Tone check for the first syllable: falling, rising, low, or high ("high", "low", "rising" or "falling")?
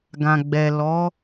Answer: low